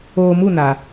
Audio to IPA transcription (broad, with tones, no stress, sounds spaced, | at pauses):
oː˧ m u˦˨ n a˨